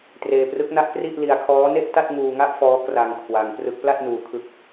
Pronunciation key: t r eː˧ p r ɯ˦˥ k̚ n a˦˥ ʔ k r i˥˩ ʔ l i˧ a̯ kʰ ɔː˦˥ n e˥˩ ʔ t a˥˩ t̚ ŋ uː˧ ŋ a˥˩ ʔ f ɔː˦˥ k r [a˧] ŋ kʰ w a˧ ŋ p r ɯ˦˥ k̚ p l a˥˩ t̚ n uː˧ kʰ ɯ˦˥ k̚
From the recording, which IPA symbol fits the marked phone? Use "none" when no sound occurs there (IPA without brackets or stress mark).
a˧